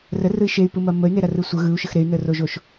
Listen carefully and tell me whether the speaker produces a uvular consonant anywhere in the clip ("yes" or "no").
no